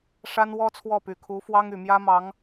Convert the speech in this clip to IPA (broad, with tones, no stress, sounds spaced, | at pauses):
ʂ a˥ n w ɔ˥ t͡sʰ w ɔ˥˩ p y˨˩ kʰ u˧˥ f w ɑ˥ ŋ y˨˩ m j ä˥ m ɑ˧˥ ŋ